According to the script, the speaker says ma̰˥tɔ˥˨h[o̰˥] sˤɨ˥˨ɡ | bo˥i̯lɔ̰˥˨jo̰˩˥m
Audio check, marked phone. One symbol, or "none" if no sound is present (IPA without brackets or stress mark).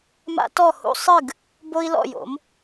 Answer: ṵ˥